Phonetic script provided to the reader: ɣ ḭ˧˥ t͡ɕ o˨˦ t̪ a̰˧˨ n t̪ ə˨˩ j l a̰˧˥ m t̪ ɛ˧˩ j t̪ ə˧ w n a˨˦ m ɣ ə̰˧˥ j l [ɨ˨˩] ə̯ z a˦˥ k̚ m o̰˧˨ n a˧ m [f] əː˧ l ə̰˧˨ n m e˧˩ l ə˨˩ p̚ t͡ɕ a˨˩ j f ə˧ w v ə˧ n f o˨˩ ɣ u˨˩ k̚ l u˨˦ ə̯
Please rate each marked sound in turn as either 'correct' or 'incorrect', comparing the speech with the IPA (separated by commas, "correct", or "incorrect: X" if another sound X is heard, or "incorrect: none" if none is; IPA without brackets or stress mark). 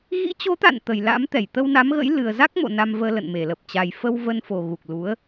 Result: correct, incorrect: v